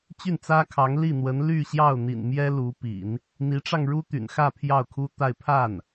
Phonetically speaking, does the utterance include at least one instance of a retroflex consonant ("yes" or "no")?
yes